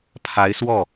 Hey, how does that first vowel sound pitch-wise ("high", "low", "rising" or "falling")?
rising